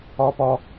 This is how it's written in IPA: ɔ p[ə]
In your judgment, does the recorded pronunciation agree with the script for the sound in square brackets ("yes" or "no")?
no